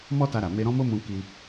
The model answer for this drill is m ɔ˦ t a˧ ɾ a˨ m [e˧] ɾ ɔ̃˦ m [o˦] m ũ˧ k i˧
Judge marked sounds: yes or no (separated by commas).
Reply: yes, yes